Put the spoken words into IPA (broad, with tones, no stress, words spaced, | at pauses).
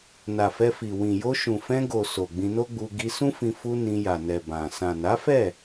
na˨fɛ˧fi˨ wĩ˨jo˧ ʃũ˨fɛ̃˧ɡo˨ so˨ɡ͡bĩ˧no˦ɡ͡bu˧ ɡi˧sũ˦fĩ˧ fu˧ nĩ˧ja˨nɛ˨ bã˨ sã˨na˨˦fɛ˦˨